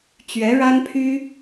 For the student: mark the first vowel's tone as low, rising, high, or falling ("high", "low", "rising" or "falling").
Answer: rising